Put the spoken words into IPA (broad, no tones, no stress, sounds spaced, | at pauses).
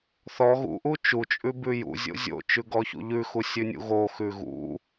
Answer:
θ ɔ ɣ ṵ ʔ u t͡ʃ u t͡ʃʼ ʉ b ʉ j ṵ zʲ o̰ zʲ o̰ t͡ʃ ʉ ɡ ɔ ç ṵ ʎ ʉ x u sʲ ʉ nʲ ṵ ɣ o x ʉ ɣ ṵ